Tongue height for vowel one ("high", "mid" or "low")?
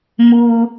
high